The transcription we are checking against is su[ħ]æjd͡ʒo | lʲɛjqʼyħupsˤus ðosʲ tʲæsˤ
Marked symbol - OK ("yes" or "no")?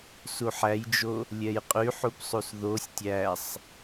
yes